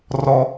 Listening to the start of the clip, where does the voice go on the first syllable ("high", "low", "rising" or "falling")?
high